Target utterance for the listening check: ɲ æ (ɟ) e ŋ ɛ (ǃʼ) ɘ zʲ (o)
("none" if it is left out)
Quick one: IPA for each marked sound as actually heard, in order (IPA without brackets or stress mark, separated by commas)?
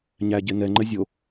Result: ɟ, ŋ͡ǃ, o